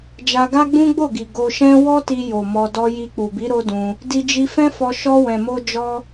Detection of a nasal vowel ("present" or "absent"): present